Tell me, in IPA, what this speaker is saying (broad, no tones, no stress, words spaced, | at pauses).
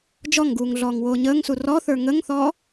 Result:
d͡ʒɔŋɡuːŋ ɮɔːŋwoːɲəːŋsu rɔθə˞ ŋəŋθɔː